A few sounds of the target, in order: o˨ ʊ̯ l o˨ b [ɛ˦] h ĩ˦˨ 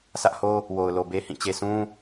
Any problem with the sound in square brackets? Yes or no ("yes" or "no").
yes